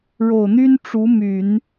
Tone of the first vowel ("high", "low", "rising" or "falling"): low